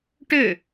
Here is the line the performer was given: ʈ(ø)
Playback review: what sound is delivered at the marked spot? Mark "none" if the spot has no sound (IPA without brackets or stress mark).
ø